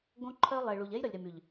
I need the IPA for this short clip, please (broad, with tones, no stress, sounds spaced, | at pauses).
ɡ õ˦ ǃʰ œ˦ lˠ e˨ ɭ u˨ ʎ ɛ˦ j ɾ ə˨ lʲ ɾ e˨ m y˨ ʎ